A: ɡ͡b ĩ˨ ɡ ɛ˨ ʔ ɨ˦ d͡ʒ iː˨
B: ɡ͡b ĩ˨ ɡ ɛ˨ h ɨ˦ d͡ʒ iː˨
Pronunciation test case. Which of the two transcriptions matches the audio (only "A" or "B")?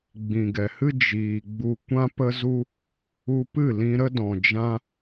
B